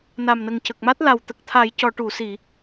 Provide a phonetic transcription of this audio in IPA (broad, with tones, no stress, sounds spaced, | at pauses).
n a˨˩ m n ə˨˩ ŋ c ə˨˩ k̚ m a˦˥ t̚ l a˨˩ w t̪ ə˨˩ k̚ t̪ʰ a˨˩˦ j c ɔ˨˩˨ ʈ u˨˩˨ s i˨˩˨